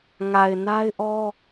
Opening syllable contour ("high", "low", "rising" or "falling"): low